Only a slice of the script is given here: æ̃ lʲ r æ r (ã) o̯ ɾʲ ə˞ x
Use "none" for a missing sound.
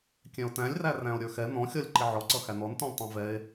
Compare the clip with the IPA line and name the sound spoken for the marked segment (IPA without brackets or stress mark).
æ̃